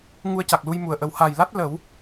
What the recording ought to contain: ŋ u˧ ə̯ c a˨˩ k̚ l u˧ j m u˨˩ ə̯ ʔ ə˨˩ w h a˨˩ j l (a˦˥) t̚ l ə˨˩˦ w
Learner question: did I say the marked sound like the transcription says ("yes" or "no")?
yes